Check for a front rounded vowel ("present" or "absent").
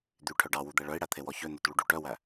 present